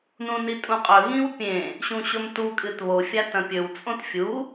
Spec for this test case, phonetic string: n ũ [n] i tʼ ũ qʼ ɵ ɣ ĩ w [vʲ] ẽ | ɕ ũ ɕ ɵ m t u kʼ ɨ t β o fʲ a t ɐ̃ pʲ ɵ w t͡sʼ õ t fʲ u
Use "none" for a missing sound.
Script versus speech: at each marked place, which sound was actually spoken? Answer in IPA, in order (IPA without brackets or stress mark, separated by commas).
n, pʲ